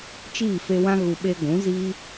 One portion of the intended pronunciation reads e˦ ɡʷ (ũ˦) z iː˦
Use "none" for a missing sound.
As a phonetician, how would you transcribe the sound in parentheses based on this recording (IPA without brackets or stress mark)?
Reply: ũ˨˦